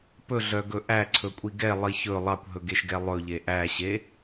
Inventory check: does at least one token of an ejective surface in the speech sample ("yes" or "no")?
yes